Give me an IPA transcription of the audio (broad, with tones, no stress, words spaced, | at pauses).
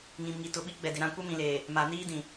ŋĩ˨mŋi˨ tʊ˨ɓi˦ɡ͡bɛ˨dɪ˨ ɾã˦ kʷɛ˦mĩ˨leː˨ | ma˨ niː˦dĩ˨